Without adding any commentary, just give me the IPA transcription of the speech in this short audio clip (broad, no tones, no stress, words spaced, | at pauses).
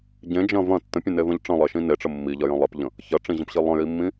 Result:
ɟẽd͡ʒɐ̃ vɐ̃ tːə̃pʲẽnevɐ̃ʎ ʈ͡ʂə̃lˠeʃĩ neʈ͡ʂə mːiʎɐjɐ̃ lˠepʎə̃ | çɐʈ͡ʂĩʑə̃pɕi lˠə̃jimːĩ